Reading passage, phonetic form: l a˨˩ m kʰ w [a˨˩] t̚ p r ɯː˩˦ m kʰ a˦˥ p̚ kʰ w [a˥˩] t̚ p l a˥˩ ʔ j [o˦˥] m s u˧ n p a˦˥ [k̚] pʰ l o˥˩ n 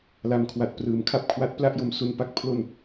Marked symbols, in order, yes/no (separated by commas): yes, no, no, yes